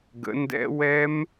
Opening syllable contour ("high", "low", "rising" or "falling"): rising